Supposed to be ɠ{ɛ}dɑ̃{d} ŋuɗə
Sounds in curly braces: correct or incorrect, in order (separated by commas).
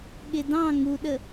incorrect, incorrect